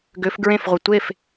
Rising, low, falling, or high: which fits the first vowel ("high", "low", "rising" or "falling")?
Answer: rising